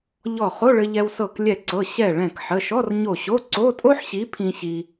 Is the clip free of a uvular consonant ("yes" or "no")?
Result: no